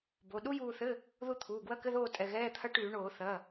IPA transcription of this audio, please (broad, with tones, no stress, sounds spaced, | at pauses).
b o˩˧˩ ɗ u˦˥ j uː˦˨ θ ɘ˧˥˧ | ð u˦˨ t̪ʰ uː˩˧˩ ɡ w ɐ˧˥˧ k ɘ˧˥˧ ð oː˦˨ tʼ ɛ˩˧˩ ɣ ɛː˧˥˧ t̪ʰ ɐ˦˥ ʈ yː˧˩˧ ɳ oː˧˩˧ θ ɐ˩˧˩